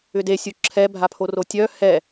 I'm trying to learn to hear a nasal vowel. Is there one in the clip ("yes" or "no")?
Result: no